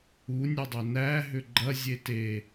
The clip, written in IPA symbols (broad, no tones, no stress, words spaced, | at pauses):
unʲɐdˤɛ næɦʏ ɡ͡ǃɐzʲe te